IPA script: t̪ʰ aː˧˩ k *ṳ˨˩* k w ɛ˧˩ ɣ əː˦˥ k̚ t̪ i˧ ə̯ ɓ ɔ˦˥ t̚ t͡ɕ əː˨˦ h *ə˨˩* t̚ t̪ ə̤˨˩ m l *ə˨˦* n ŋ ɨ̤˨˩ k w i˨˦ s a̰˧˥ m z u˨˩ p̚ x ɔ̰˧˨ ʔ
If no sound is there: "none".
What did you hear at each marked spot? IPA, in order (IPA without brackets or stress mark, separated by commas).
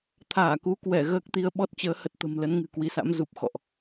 u˨˦, ə˨˩, ə˨˦